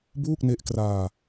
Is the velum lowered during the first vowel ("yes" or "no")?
no